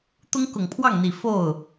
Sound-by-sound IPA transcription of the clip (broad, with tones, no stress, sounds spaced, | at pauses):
t̪ ʊ˥ ŋ k ʊ˨˩ ŋ pʰ w ɑ˥˩ ŋ n̪ i˨˩ f o˥˩ ʊ̯